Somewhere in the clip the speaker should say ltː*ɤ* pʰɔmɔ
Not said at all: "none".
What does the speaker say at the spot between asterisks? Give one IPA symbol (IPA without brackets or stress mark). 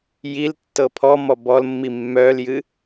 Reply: ɤ